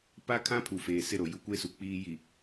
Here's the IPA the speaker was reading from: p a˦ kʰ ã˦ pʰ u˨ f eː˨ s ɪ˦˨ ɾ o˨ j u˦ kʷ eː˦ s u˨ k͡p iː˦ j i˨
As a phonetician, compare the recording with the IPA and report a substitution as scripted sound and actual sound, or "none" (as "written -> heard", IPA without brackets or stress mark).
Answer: none